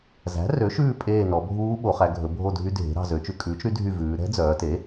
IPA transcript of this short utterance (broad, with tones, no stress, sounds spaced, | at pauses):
z æ̤˩˥ r ø˩˥ ʃ ʉː˦˨ pʼ eː˦˨ n ɔ˩˧ bʱ uː˦˥ ɓ o˩˧ χ æ˩˧ ɡʱ ɵ˩˧ bʱ o˦˨ dʱ y˦˥ dʱ e̤˩˥ ɾ ɑ̤˦˨ z ø˩˧ t͡ʃ ʉ˩˧ kʼ ʉː˩˥ t͡ʃ ɾ y˩˥ dʱ y˦˨ v ʉː˩˧ ɾ ɛ̤˦˥ d͡z œː˩˧ t e˩˥